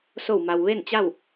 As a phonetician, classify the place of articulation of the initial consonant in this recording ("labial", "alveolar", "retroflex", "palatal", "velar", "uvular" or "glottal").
alveolar